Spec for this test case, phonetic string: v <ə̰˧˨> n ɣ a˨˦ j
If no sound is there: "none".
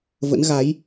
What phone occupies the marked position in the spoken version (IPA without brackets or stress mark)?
ə̰˧˥